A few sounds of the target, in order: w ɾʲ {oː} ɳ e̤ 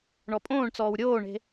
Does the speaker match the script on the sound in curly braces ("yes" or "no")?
yes